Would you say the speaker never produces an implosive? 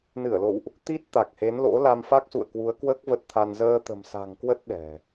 no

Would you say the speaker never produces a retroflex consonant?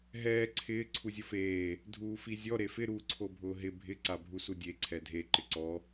yes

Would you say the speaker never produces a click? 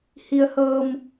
yes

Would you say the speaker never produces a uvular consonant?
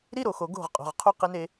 no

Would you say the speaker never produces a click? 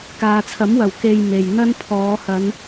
yes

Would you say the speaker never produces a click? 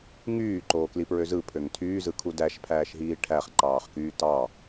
no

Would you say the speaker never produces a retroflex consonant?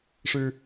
no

